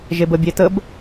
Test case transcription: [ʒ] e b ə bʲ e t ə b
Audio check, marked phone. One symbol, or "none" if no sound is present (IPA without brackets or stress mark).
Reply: ʒ